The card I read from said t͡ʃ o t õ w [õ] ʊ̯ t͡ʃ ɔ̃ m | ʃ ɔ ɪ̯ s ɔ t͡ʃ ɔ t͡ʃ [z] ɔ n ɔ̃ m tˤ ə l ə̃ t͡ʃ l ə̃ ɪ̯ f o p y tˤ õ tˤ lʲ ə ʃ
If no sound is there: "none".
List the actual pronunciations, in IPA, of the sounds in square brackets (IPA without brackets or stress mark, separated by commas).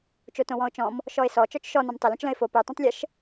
ɔ̃, ʃ